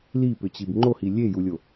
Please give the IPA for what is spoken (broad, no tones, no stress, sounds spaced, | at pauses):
l i p ʏ t͡ɕ i b ŋ͡ǃ o h i lʲ e j u lʲ o